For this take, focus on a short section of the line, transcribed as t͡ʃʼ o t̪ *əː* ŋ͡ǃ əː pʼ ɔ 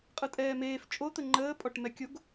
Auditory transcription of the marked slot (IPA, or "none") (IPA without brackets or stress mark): ə